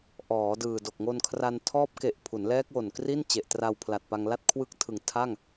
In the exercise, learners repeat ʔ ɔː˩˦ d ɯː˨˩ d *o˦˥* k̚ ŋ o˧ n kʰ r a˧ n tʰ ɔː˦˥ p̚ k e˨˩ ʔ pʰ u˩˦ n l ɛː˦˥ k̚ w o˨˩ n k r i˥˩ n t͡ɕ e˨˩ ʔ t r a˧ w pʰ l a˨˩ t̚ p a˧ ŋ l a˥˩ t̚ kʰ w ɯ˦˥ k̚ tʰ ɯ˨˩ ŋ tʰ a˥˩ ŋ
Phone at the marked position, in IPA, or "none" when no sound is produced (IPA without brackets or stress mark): o˨˩